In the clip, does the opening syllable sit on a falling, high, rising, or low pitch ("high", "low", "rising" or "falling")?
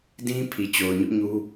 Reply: high